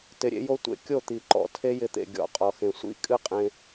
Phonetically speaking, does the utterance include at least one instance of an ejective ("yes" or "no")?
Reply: yes